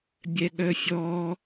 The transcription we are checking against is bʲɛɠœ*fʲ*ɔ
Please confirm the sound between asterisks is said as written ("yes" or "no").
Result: yes